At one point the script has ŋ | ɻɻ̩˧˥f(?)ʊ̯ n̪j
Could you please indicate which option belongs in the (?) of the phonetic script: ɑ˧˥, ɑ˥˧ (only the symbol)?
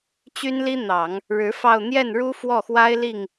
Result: ɑ˥˧